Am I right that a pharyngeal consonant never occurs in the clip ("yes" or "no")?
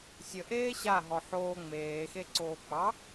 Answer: no